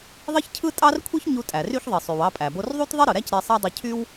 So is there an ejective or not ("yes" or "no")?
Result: yes